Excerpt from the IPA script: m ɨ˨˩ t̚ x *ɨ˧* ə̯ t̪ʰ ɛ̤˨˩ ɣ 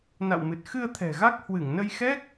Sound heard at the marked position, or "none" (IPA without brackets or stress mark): ɨ˧